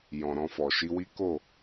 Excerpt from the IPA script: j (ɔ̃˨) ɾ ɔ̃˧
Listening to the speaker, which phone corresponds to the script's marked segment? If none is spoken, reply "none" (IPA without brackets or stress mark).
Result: ɔ̃˨